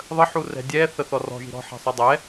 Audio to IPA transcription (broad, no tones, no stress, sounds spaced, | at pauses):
ðˤ ə ħ u r ɛ̤ dʲ ɛ θ ə θ ɔ r ɔ̤ ʒ i̤ ɾ ɔ̤ ħ ɛ̤ sˤ ʏ dˤ ɛ